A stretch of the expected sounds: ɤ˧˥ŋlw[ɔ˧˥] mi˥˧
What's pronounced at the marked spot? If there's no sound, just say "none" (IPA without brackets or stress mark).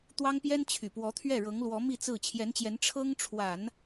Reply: ɔ˧˥